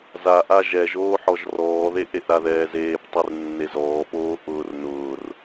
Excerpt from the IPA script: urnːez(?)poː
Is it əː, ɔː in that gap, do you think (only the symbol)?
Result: ɔː